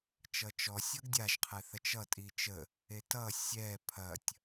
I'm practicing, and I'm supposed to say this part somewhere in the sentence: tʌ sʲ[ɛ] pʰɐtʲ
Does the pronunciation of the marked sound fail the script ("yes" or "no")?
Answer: no